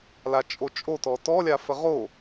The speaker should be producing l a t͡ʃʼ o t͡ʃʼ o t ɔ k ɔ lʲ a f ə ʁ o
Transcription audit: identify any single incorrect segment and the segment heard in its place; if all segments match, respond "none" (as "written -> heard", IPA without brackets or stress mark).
k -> t